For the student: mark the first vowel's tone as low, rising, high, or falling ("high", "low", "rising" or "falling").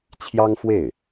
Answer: high